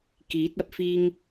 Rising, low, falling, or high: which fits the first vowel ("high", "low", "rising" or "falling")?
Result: rising